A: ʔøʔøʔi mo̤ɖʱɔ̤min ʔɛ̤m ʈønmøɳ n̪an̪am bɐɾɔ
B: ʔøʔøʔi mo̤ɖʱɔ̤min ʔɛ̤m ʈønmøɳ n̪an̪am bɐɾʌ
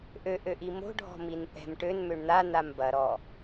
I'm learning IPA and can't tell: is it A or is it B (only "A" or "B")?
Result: A